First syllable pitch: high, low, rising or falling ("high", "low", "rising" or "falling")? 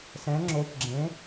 rising